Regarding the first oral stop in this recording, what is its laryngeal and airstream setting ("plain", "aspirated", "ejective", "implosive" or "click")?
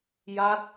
plain